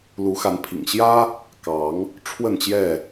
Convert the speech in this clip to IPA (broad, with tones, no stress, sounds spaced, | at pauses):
l u˨˦ x a˨˦ n pʰ ḭ˨˩ ŋ ɕ j ä˦ | k ɑ˨˦ ŋ | ʈ͡ʂʰ w ə˥˨ n t͡ɕ j ɛ˥˨